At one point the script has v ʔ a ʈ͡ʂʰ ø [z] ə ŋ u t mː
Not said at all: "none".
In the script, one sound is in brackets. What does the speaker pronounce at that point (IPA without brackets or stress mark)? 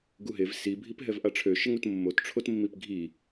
ʃ